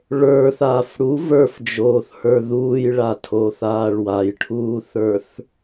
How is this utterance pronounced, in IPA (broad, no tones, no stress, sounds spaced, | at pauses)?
ɭ ə˞ θ aː f ɽ u v ə˞ f d͡ʒ oː θ h ə˞ ð uː j ɭ a tʰ o θ aː ɭ w a j ʈʰ uː θ ə˞ θ